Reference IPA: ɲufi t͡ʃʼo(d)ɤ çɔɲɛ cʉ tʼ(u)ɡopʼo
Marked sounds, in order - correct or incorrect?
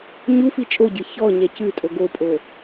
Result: incorrect: ɟ, incorrect: o

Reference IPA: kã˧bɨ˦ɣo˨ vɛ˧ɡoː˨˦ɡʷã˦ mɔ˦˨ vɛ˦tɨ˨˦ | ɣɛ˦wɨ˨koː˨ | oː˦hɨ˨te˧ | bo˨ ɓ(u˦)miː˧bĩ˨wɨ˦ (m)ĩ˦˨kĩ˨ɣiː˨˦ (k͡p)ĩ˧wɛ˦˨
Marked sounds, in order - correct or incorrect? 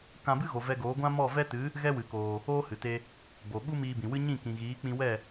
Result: correct, incorrect: ɲ, correct

